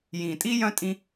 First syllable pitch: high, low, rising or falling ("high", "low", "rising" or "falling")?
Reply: low